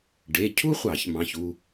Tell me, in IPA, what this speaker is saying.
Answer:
ɖe˩˧˩cʰu˥χʷɑ˧˩˧ç mɑ̃˩˧˩çu˥˧

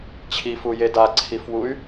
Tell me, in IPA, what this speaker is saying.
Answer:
t͡ɕʰifuje daǀʰifwuy̯

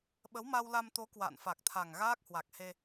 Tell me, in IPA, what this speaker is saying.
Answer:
ɓə˨˦wma˧wla˧mt̪o˨˦ kwa̰ː˧˨nfa˨˩k̚t̪ʰa˨˩ŋ ɣaː˦˥k̚hwa˨˩k̚he˧

